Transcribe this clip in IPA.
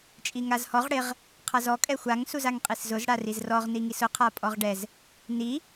t͡ʃʼ i ŋ a z h ɔ ʁ ɽ ɪ ʁ | qʰ a z ɔ kʼ ɛ xʷ a ŋ s u z a ŋ qʼ i s z ʊ z ɽ a r i z r ɔ ʁ n i ŋ i s ʊ qʰ a pʼ ɔ ʁ ɖ ɛ z | n i

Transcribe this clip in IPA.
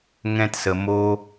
ŋ ɛ̃˦ t s ə˧ m o˦

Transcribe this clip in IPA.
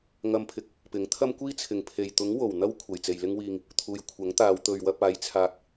ŋ ɐ˧ m pʰ ɪ˨˥ k̚ | p ɪ˨˥ ŋ t̪ʰ ɐ˥ m kʷ iː˥ t͡sʰ ɪ˨ ŋ pʰ e˨ j t̪ ʊ˨˥ ŋ w o˨˩ w n̪ ɐ˥ w kʷʰ ɐ˨ j t͡s e˨ j l ɪ˥ ŋ w iː˧ ŋ | t̪ʰ uː˨ j kʷʰ ɐ˨˥ ŋ t̪ aː˨˧ w t̪ ɵ˨ ɥ w ɐ˧ p̚ aː˨˥ j t͡sʰ aː˧ k̚

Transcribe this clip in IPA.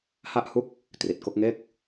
h a˦˥ ʔ h u˦˥ k̚ | t r i˨˩ t̚ k o˦˥ k̚ ŋ e˥˩ k̚

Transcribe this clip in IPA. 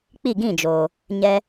k͡p i˦˨ ɡ ĩ˦˨ d͡ʒ oː˨ | ɲ ɛ˦

